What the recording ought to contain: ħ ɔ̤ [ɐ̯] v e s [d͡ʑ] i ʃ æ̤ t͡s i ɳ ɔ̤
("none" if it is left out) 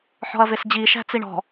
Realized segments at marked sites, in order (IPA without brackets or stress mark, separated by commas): ɐ̯, d͡ʑ